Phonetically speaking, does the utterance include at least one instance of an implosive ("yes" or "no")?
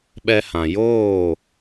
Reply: yes